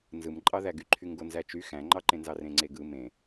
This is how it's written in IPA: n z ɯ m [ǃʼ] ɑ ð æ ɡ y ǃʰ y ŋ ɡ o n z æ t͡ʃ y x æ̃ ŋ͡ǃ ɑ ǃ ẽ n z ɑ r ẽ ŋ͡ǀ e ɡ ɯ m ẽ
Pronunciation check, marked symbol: correct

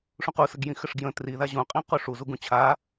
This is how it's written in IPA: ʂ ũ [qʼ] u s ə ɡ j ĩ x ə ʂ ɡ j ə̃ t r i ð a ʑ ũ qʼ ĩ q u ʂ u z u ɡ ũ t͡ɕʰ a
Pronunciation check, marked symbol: incorrect: q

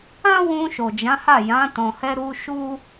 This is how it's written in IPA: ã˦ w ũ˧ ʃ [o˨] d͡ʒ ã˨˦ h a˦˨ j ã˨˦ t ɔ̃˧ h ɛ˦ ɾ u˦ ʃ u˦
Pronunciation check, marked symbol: correct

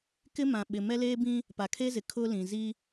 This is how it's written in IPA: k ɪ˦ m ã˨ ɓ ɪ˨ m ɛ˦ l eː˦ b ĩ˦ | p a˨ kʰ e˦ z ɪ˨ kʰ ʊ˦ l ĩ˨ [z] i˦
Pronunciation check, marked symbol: correct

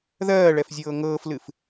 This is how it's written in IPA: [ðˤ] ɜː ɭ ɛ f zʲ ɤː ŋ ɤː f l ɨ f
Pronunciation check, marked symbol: incorrect: ð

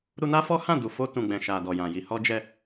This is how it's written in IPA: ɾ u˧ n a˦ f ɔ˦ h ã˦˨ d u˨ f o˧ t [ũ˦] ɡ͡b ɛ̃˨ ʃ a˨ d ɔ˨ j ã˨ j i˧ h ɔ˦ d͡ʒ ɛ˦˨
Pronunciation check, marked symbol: incorrect: ũ˨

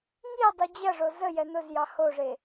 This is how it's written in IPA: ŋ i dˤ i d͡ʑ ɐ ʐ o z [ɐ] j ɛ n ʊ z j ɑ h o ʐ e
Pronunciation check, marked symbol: incorrect: ə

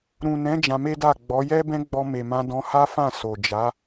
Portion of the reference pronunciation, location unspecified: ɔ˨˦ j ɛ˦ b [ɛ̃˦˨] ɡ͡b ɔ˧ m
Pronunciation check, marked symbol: incorrect: ɛ̃˦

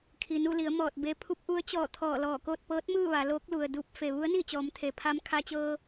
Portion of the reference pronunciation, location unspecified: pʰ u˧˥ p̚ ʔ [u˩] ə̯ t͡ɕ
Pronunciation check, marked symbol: incorrect: u˧˥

